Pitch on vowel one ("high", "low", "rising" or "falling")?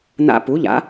high